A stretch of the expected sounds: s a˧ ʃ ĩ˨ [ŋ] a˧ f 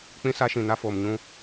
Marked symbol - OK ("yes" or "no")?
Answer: no